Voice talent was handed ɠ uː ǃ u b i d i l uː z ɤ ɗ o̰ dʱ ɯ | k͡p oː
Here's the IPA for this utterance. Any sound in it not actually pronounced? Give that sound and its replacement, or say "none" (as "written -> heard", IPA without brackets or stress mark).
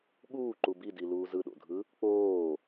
ɤ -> ɯ